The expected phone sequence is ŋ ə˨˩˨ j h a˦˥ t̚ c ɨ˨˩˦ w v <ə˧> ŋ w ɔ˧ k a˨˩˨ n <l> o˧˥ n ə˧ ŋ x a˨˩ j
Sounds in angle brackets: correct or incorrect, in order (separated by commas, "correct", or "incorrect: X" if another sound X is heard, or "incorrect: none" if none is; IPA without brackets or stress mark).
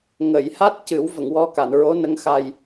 incorrect: ə˨˩˨, incorrect: ɹ